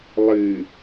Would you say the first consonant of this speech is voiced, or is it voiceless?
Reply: voiced